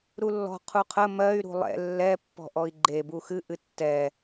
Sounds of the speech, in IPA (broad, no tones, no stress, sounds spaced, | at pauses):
ɾ u lː ɔ̤ qʰ u qʰ ə m ɜ y̯ ɾ ṳ lˠ ɛ̰ lː ɛ pː ɔ̤ ʔ ɔ i̯ ɡ͡ǃ e b u x ɨ ʔ ɨ tː ɛ